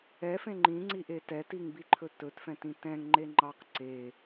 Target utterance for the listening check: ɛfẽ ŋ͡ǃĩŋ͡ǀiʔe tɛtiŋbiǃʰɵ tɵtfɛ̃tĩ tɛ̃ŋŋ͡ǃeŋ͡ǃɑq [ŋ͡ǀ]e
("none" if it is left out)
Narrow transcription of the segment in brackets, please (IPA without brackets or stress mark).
ǀ